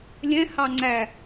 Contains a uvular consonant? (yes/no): no